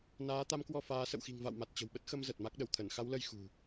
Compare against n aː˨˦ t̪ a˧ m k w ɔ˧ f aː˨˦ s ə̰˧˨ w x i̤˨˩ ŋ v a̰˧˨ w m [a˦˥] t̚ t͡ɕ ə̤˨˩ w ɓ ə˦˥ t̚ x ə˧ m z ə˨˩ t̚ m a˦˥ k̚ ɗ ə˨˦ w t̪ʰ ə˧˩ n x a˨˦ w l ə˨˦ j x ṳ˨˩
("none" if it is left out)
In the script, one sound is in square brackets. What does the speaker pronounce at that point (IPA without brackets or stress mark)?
a˨˩